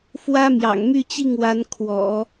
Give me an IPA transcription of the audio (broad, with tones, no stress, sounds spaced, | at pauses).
f w ä˥ m j ɑ̰˨˩ ŋ m y˥˧ t͡ɕ i˥˩ ŋ w a˧˥ n kʰ w ɔ̰˨˩˦